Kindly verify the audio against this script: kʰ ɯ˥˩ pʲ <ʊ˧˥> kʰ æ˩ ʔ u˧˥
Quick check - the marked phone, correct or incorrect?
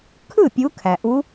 incorrect